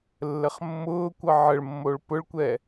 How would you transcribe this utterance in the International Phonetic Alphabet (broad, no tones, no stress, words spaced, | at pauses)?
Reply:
lːəχmːʊːkʷʌ ʕəɭmːoɭ pʊɭkʷɛ